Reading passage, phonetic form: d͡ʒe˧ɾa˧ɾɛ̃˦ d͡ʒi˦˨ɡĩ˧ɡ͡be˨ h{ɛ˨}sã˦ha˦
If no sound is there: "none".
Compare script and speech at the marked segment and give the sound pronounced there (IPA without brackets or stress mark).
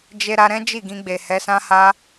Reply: ɛ˨˦